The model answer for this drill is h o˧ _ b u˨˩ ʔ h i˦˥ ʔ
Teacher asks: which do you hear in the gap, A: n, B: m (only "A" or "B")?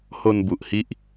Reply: A